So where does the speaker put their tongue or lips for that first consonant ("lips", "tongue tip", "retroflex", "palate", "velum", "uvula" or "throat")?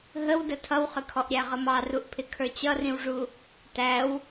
throat